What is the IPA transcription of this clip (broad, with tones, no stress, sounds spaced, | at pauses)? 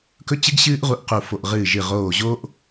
k ɵ˧ t͡ɕ ɨ˧ ɡ ɕ ɨː˧ ʔ ʁ u˧ ʔ q u˧˩ f o˧˩ ʔ ʁ ɨː˧˩ ʒ ɨ˧˩ ʁ oː˧˩ ʑ oː˧ ʔ